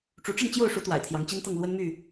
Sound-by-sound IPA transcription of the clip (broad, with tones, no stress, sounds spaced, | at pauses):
ʈ͡ʂ u˨˦ ʈ͡ʂ ə˥˨ n t͡ɕ j o˥˨ ʊ̯ ʂ u˨˦ t̪ w a̰˨˩ ɪ̯ t̪ʰ j ɑ˨˦ ŋ t͡ɕ i˦ n t̪ ɤ˥˨ ŋ l w ə˦ n m y˥˨